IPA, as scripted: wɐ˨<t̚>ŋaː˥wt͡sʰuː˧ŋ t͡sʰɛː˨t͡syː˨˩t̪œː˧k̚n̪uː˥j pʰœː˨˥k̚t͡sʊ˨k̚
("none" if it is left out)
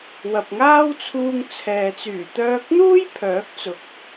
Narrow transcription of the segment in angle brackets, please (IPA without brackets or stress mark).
p̚